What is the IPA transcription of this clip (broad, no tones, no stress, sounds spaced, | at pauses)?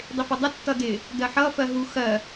dˤ ɪ f ʌ dˤ ə tː ʌ d ɪ | d ɜ ħ ʌ f ɜ ɦ u x ɜ